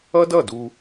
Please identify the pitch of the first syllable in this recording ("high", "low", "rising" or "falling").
high